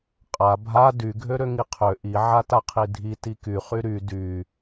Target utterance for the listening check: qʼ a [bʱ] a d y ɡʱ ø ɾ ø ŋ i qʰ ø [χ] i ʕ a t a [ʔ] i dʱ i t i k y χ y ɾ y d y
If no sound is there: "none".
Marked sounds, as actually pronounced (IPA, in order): bʱ, ʔ, qʰ

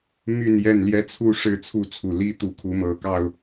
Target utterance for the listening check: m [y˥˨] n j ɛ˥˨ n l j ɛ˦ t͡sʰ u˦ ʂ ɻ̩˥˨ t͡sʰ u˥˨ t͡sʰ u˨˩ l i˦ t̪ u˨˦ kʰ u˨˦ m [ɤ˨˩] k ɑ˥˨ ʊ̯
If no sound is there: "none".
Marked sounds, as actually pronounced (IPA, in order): y˥˨, ɤ˨˩

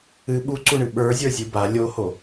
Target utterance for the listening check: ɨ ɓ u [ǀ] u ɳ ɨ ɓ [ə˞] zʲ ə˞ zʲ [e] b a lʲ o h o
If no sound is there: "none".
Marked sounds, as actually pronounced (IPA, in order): ǀ, ə˞, ɨ

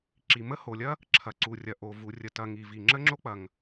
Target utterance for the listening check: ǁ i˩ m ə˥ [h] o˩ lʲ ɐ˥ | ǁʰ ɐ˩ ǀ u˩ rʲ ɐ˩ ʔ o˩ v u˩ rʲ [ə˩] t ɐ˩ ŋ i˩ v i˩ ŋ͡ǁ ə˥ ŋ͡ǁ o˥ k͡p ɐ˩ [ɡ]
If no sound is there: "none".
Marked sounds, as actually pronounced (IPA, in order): h, ə˩, ŋ

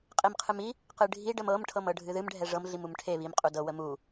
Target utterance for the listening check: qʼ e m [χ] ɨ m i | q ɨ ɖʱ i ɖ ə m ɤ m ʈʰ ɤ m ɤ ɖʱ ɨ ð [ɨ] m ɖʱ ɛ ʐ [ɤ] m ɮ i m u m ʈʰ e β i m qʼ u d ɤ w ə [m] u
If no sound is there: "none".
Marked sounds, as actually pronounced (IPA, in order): qʰ, ɨ, ɤ, m

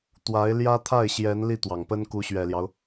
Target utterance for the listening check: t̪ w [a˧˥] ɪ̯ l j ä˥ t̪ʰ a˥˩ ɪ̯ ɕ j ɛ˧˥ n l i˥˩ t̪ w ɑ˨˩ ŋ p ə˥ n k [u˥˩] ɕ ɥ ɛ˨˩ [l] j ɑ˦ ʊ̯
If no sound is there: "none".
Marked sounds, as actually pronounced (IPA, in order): a˧˥, u˧˥, l

